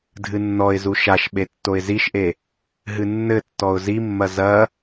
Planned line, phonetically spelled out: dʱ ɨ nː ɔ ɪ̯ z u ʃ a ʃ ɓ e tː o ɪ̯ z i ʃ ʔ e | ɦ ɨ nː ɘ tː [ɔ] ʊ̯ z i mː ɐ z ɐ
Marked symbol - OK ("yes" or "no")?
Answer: yes